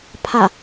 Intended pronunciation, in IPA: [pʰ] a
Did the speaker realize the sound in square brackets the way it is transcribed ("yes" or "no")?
yes